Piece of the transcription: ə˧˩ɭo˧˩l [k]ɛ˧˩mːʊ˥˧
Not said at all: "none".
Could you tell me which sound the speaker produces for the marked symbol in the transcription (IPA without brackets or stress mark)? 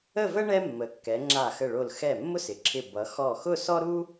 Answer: x